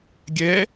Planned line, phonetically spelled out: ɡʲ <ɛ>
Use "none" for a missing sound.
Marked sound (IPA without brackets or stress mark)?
ɛ